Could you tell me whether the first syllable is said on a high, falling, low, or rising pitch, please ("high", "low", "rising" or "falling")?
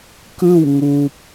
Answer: falling